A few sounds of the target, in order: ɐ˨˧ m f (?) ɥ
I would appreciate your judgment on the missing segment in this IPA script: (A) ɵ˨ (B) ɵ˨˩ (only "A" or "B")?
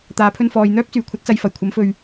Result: A